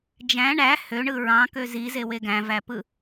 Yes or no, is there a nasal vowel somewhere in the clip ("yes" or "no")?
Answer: yes